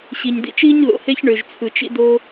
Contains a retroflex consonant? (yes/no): yes